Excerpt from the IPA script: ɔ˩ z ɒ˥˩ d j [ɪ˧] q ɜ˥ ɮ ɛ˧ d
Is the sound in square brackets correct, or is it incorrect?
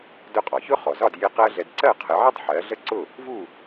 correct